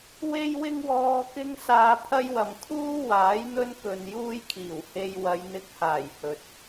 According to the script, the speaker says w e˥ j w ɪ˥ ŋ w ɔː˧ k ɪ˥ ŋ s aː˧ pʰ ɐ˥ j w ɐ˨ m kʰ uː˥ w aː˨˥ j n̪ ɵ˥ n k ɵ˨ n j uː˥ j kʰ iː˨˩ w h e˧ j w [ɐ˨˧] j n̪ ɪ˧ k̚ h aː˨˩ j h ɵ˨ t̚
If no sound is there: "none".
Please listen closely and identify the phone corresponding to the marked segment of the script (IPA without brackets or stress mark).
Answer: ɐ˨˧